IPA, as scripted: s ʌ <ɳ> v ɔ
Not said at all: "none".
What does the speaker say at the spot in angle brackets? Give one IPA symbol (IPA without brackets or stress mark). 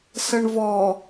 ɳ